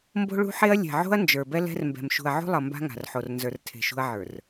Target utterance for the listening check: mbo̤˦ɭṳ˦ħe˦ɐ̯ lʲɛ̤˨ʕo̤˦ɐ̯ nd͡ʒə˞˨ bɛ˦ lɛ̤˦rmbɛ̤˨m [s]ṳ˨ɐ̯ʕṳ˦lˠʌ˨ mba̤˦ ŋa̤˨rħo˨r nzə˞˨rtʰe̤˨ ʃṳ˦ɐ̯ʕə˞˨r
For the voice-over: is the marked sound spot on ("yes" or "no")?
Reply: no